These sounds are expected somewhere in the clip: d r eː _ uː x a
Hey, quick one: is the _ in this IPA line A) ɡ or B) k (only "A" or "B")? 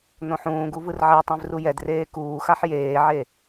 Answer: B